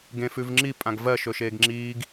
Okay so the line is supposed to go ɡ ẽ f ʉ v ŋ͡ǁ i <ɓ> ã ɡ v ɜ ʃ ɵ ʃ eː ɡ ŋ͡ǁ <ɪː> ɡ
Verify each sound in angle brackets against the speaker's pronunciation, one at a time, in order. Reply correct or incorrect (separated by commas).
incorrect, incorrect